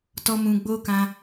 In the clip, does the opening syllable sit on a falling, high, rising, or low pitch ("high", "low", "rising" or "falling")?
high